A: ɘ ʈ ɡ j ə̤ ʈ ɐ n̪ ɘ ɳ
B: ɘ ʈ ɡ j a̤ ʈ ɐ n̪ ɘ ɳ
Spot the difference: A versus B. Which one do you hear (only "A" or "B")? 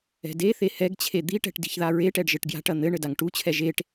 B